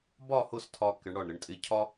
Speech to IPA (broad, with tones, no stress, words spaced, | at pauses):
bɒ˥˧ hʊ˥˧stʰɒ˧ kɪ˩˧ɳɽɒ˧˩ɳɾɪ˧ɳtʼɪ˧ cʰɒ˥